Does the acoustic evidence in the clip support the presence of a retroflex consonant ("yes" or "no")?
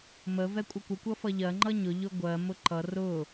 no